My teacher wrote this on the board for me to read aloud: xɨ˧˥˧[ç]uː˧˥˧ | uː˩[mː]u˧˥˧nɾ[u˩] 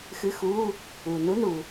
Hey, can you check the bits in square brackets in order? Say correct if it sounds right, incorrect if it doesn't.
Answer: incorrect, incorrect, correct

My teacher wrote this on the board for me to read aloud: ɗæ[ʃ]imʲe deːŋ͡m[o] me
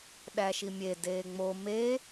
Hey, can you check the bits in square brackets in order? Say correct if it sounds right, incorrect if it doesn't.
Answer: correct, correct

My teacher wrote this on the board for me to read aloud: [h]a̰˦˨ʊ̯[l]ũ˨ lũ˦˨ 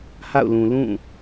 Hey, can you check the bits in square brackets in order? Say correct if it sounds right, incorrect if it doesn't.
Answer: correct, correct

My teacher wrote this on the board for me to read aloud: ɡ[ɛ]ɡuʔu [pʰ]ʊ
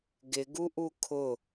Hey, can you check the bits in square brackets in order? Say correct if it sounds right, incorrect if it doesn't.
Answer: incorrect, incorrect

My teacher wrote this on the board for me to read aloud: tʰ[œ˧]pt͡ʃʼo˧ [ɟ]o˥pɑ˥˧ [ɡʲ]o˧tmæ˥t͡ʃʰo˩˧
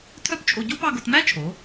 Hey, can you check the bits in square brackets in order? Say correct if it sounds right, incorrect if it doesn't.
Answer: incorrect, correct, incorrect

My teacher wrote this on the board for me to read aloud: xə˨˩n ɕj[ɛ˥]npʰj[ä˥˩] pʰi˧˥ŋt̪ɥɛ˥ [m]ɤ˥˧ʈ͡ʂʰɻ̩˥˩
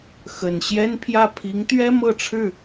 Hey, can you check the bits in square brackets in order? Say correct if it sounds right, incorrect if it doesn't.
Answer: correct, correct, correct

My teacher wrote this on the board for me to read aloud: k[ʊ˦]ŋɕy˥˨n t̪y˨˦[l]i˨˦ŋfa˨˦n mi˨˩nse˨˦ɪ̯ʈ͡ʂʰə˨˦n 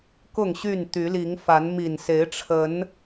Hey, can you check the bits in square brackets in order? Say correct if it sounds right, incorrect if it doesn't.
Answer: incorrect, correct

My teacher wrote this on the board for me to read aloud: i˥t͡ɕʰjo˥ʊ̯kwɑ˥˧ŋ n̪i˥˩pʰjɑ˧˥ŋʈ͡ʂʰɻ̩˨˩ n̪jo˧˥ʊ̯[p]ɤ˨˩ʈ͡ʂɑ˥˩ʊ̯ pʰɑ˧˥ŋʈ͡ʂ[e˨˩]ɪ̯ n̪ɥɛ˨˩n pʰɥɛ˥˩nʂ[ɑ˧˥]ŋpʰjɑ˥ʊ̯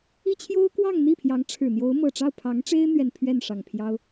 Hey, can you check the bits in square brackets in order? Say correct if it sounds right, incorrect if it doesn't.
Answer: incorrect, incorrect, incorrect

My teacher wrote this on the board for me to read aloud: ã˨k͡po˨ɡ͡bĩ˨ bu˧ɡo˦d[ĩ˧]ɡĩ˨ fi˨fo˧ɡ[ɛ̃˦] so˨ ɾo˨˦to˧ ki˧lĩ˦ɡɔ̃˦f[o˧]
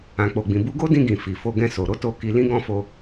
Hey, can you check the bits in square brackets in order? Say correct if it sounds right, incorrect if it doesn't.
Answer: correct, incorrect, correct

